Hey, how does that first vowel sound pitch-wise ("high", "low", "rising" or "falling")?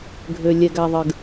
low